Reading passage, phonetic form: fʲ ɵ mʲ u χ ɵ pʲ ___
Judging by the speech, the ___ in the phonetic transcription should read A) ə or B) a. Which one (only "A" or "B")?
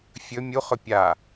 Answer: B